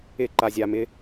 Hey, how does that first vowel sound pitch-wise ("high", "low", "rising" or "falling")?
falling